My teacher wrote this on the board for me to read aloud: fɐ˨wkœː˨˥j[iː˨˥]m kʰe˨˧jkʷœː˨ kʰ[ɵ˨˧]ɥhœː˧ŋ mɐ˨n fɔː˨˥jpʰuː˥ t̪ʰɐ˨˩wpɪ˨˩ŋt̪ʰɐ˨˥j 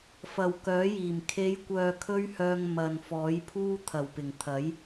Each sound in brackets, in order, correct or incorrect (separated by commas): incorrect, incorrect